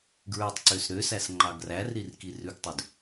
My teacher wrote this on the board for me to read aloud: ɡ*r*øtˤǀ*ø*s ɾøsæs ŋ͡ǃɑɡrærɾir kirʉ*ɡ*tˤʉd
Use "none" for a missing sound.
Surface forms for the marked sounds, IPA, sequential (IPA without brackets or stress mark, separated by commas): ɹ, ø, ɡ